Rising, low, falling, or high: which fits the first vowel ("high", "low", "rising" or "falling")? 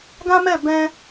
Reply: high